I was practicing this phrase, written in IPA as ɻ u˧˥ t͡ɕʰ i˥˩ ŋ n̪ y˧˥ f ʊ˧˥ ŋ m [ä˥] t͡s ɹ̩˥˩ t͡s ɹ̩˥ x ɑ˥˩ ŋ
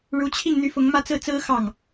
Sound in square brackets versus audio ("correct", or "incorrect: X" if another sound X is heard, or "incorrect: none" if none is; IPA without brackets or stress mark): incorrect: ä˥˧